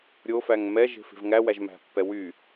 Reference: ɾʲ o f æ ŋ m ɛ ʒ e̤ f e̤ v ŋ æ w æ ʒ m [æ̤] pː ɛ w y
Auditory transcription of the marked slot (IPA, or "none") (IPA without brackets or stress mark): æ̤